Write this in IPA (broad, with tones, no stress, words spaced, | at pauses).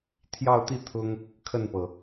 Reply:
t̪ʰjɑ˥˧ʊ̯t̪i˥˩ t̪ʰʊ˥ŋ | kʰə˥˩npɤ˩